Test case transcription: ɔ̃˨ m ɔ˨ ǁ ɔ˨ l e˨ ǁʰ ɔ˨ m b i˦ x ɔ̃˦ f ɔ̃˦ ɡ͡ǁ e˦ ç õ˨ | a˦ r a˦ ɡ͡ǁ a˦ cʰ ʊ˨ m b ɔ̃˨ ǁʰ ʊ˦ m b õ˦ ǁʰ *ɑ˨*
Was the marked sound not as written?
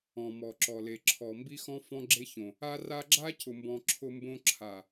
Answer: yes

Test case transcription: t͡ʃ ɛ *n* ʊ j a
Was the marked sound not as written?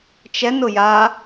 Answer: no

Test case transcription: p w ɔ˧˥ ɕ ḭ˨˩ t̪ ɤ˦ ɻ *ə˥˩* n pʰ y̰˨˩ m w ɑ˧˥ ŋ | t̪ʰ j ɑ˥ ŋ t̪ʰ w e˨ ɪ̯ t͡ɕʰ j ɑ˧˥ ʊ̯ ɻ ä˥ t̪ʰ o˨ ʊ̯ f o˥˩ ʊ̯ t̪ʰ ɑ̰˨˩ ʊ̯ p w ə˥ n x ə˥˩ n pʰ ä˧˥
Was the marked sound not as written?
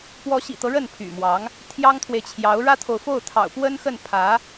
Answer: no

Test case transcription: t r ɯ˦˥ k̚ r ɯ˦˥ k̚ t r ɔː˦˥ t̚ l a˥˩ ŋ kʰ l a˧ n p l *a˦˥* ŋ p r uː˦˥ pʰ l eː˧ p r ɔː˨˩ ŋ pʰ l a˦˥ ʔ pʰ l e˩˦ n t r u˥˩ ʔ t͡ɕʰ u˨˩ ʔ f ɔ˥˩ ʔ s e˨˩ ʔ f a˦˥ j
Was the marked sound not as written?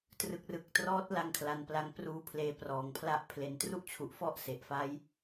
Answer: no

